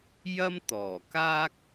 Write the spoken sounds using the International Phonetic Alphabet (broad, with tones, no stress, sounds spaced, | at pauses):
j ɐ˥ m t̪ ɔː˨˩ k aː˥ k̚